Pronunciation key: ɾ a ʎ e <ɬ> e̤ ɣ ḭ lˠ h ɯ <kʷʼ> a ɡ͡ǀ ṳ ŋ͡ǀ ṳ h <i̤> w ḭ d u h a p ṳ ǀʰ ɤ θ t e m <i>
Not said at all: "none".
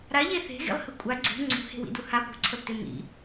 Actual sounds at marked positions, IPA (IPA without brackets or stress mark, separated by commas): θ, kʷʼ, e̤, ḭ